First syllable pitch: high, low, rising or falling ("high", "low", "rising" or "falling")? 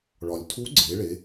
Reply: low